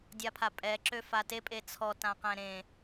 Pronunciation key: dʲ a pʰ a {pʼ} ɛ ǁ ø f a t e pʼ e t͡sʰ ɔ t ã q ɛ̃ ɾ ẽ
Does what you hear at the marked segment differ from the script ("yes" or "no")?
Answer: no